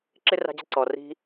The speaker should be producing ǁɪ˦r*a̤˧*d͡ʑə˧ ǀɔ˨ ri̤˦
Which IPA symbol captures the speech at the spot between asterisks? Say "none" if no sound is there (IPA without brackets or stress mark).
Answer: a̤˧